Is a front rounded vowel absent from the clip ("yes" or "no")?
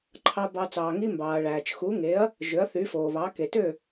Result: no